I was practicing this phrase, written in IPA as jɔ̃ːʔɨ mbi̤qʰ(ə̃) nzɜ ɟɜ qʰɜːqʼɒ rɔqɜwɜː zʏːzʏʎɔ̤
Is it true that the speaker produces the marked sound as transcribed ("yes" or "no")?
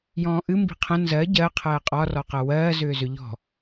yes